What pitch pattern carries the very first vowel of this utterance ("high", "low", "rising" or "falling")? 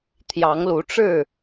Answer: rising